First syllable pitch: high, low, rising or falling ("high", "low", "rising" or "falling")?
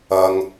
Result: low